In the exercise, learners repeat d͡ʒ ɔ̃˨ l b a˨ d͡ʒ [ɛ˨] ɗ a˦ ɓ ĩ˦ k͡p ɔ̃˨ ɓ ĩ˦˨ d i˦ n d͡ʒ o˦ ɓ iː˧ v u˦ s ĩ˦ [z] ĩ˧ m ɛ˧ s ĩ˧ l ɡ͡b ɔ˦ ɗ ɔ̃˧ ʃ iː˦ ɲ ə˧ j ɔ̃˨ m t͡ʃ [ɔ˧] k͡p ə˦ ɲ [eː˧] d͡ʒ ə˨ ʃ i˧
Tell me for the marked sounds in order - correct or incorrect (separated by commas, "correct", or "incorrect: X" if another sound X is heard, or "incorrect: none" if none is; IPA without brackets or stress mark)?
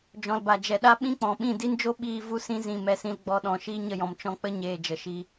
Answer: correct, correct, incorrect: ɔ̃˧, correct